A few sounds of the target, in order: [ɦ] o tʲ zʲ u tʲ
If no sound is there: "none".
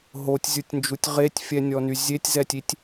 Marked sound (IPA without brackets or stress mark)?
ɦ